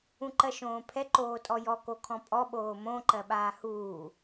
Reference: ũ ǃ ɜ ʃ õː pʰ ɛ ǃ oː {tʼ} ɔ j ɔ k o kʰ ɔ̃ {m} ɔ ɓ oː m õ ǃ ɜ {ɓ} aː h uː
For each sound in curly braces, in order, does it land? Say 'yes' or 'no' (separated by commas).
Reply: yes, no, yes